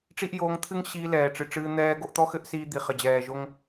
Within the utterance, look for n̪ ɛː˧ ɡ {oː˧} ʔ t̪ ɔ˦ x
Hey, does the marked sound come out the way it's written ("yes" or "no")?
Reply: no